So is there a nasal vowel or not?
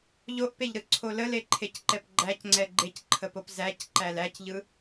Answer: no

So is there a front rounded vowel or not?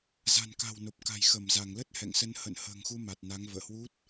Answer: no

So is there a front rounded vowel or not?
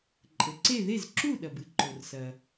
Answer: no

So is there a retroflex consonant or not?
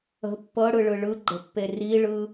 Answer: yes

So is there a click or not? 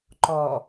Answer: yes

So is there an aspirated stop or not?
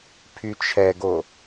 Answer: yes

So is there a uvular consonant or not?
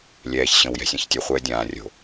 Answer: yes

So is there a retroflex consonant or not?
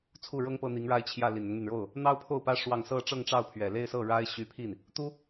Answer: yes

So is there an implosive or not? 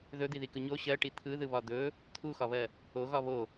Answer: no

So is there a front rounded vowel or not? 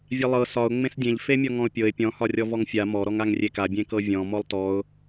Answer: no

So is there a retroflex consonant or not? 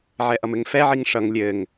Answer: yes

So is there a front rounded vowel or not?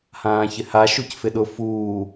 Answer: no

